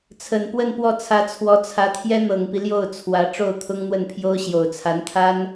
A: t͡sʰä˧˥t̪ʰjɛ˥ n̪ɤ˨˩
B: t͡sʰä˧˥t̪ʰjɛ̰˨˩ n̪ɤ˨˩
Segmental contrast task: A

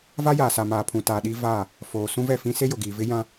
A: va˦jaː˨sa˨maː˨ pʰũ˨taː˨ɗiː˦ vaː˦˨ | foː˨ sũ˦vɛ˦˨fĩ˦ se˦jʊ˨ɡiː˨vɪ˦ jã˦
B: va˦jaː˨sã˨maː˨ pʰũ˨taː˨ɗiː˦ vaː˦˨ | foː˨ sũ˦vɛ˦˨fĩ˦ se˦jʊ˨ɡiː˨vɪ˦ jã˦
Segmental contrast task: A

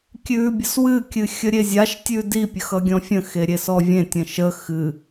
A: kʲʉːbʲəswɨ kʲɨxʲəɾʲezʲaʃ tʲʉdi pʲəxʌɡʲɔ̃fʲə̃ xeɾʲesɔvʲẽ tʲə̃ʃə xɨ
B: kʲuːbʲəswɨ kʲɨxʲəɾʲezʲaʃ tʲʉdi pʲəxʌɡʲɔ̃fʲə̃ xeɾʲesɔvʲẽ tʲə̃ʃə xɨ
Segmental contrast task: A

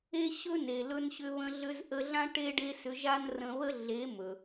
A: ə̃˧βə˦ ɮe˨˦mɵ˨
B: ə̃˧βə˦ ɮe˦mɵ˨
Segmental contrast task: A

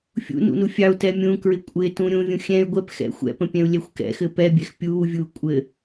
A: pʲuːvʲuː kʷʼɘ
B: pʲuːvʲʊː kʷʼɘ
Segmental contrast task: A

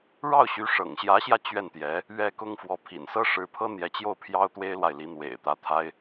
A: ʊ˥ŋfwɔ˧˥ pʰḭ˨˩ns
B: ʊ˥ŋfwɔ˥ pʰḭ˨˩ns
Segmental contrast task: A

